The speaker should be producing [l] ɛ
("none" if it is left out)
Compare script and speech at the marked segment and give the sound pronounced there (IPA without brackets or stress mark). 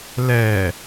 l